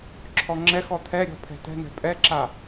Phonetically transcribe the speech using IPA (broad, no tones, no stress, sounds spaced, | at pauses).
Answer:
ǁʰ ɔ ŋ͡ǁ ɛ x ɔ t̪ʰ ɛ ɾʲ ɔ̤ pʰ ɛ̤ t ɛ̤ n̪ ɛ̤ pʼ ɛ ǁ a